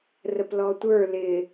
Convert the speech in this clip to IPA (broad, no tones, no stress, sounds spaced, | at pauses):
r ə p l ɔ tʷ ə˞ l ɪ